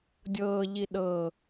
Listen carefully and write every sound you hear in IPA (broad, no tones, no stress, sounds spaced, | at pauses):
dʲ ɤː ʎ i ɗ ɤ